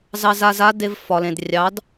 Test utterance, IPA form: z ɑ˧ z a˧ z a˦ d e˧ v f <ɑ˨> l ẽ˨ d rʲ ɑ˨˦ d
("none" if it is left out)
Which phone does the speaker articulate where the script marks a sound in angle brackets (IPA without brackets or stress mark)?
ɒ˨